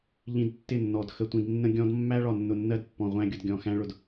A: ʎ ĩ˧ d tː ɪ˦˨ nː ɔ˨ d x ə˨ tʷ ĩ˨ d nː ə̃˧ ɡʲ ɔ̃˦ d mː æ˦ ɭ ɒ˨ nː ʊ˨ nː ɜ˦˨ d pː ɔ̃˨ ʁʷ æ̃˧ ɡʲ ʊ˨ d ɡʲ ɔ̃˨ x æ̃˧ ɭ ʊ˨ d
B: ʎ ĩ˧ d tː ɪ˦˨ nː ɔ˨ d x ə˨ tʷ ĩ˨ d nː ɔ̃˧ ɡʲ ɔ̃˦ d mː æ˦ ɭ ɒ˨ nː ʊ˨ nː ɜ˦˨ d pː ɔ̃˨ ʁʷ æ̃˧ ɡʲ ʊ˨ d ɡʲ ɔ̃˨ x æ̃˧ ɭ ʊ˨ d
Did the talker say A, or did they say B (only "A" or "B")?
A